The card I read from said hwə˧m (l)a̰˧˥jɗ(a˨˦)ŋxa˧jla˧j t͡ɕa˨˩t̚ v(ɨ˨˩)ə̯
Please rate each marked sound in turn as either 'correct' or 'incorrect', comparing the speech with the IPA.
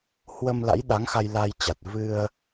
correct, correct, incorrect: ɨ˧

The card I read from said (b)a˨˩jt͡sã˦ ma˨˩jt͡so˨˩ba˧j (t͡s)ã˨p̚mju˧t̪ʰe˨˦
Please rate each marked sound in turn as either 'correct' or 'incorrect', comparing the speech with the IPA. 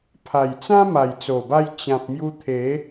incorrect: pʰ, incorrect: t͡ɕ

